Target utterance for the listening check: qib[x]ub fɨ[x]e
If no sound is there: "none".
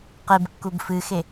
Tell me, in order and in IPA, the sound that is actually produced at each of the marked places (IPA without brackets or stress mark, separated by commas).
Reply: kː, x